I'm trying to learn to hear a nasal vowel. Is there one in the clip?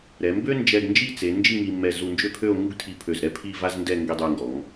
no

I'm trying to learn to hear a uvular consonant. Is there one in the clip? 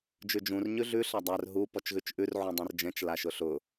no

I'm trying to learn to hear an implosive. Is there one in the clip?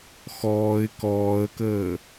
no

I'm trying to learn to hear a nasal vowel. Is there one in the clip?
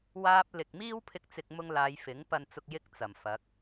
no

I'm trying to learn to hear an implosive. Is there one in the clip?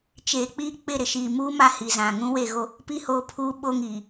yes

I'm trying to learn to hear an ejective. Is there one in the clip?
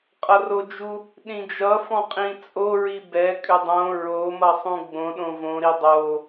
yes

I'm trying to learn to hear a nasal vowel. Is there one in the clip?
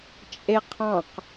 yes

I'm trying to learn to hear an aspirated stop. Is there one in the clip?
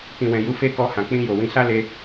no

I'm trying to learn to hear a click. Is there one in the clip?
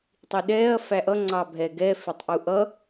yes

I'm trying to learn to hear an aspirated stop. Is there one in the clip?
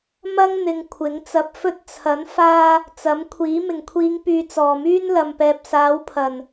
yes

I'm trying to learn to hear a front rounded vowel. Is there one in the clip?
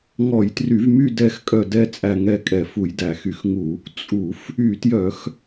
yes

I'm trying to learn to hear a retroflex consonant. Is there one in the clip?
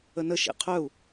no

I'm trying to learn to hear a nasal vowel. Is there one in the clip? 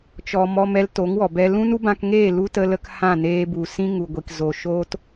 yes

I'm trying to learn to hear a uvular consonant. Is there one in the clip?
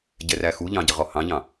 yes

